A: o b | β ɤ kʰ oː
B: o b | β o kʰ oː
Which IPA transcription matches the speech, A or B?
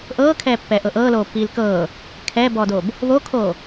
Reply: B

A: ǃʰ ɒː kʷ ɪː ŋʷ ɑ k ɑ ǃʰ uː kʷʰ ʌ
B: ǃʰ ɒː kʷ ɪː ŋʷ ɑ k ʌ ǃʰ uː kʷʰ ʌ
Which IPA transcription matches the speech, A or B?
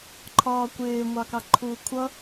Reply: A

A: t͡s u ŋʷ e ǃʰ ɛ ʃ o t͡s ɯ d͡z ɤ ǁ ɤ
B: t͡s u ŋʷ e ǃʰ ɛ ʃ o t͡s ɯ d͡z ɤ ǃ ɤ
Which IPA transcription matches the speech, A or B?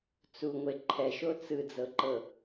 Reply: B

